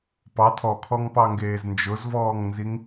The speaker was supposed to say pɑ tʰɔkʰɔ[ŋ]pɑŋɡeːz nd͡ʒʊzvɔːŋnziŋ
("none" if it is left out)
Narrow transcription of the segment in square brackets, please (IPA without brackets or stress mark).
ŋ